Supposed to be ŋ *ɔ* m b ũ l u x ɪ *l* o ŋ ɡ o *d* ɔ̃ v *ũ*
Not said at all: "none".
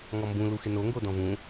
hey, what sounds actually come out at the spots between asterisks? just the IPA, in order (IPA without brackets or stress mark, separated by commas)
ɔ, n, d, ũ